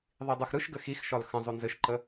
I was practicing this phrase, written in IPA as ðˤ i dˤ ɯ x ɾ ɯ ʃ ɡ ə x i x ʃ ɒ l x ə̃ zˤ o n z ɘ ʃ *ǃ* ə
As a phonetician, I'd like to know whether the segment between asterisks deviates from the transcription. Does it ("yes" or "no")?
no